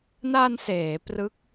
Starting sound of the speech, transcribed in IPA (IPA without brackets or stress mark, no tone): n